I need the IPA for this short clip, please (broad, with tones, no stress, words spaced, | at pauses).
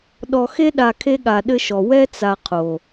ɗɔ˨xe˦ɗa˨ kʰe˦ɠa˨ɗɘ˦ʃɔ˨ wɛ˦t͡sa˨ qʰo˨